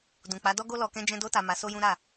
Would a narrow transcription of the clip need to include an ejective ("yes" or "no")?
no